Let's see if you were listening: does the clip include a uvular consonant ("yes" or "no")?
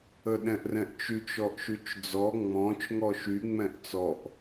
no